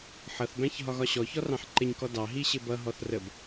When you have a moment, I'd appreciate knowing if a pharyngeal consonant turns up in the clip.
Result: yes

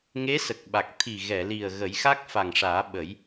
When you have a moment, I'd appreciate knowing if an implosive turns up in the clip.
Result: yes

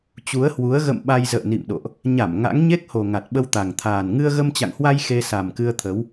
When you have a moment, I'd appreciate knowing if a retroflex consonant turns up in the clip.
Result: no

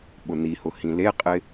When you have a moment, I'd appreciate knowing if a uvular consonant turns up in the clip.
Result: yes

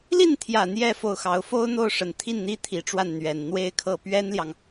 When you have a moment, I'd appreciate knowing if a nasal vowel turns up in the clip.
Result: no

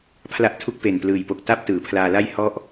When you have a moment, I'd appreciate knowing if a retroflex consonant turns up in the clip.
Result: no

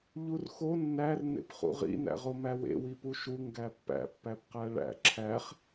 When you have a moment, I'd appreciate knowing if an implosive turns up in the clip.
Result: no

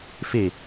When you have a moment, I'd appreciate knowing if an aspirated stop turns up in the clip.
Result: no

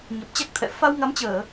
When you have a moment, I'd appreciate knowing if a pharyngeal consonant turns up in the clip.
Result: no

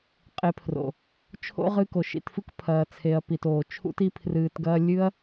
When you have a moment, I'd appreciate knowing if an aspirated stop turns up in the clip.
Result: yes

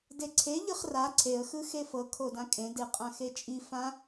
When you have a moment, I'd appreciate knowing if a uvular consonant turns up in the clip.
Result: yes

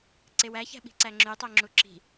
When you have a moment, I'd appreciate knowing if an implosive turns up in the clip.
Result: yes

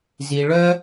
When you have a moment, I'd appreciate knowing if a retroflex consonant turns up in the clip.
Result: yes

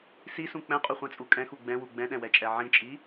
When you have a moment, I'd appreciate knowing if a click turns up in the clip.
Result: no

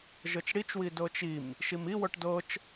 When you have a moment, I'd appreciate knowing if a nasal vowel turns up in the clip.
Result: no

